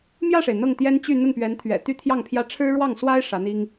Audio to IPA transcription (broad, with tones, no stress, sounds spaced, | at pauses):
m j ä˥˩ ʂ e˩ ɪ̯ n̪ ɤ˥˩ ŋ t̪ j ɛ˥ n t͡ɕ y˥˧ n̪ ə˥˩ n p ɥ ɛ˧˥ n t̪ʰ ɥ ɛ̰˨˩ t̪ y˥ t̪ʰ j ɑ˥˩ ŋ pʰ j ä˥ ʈ͡ʂʰ ɻ̩˥ ɻ w ɑ˥˩ ŋ s w a˥ ɪ̯ ʂ ä˧˥ n̪ i˥ ŋ